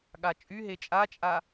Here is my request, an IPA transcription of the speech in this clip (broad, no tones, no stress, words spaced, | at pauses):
ɠat͡ʃʼyɦe t͡ʃʼat͡ʃʼa